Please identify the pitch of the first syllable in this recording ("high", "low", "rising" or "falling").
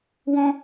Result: high